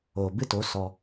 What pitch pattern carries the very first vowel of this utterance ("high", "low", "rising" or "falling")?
low